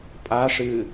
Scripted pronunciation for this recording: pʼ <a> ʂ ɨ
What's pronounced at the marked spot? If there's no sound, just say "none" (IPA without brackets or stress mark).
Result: a